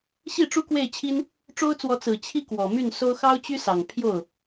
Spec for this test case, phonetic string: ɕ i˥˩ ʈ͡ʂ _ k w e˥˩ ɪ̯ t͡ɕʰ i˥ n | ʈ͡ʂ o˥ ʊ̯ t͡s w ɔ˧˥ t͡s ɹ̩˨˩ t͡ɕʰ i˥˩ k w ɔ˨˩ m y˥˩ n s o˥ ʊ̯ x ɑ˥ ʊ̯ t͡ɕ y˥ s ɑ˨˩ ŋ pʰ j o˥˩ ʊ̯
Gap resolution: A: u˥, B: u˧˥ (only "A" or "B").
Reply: A